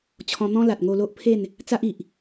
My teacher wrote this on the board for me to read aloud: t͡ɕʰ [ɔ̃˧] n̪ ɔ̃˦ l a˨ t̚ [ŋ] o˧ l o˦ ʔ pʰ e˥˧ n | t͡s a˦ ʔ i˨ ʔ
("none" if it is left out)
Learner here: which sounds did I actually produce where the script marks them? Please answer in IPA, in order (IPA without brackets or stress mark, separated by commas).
ɔ̃˧, ŋ